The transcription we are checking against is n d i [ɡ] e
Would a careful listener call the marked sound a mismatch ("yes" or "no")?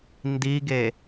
no